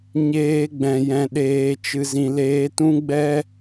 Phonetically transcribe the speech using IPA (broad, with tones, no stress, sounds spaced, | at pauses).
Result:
ɲ eː˧ ɡ͡b ɛ̃˨ j ɛ̃˨ ɗ eː˨ t͡ʃ ɨ˨ z ĩ˨ l eː˧ t ũ˦ ɡ͡b ɛ˦